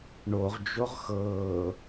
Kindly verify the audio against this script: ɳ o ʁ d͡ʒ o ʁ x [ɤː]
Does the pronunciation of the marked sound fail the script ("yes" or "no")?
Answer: no